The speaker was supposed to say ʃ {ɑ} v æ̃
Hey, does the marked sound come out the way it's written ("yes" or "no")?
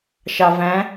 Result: yes